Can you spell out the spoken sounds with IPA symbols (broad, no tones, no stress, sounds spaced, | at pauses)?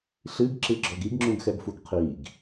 ɬ ɨ ɡ ǁ ɨ ɡ͡ǁ ɔ ɡ i ɡ ŋ͡ǁ ũ ɡ x ɛ ɡ f u ɡ qʰ i ɡ